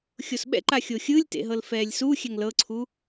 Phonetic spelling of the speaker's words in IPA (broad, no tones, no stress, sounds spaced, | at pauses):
xʲ o s ɓ ɛ̰ ǃ a xʲ o xʲ ɯ lʲ t ḛ ɦ ɤ l f ɛː lʲ s u xʲ ɛ ŋ l ɤ ǀʰ u